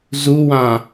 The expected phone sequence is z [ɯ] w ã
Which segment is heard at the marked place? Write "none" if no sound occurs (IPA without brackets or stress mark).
u